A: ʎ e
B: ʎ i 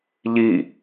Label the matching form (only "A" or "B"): B